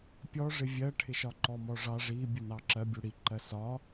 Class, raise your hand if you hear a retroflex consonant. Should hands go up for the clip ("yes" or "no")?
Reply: yes